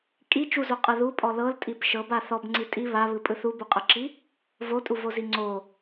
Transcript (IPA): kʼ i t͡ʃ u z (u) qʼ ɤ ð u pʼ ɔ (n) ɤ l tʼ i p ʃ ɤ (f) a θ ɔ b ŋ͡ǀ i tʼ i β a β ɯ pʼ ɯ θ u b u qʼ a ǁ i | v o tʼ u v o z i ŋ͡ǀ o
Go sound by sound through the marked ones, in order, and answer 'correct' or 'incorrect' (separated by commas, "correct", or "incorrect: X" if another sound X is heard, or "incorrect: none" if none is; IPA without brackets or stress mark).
incorrect: o, incorrect: l, incorrect: b